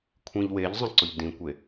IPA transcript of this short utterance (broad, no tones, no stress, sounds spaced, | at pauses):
kʷʰ ĩ ʎ w e ʎ zˤ ə̃ ǀ ʊ ʎ d ĩ kʷ e